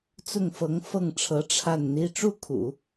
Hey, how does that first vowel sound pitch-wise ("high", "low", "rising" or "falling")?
falling